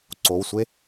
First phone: ǀ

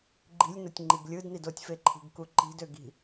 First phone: ɡ͡ǃ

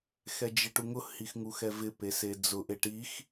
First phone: x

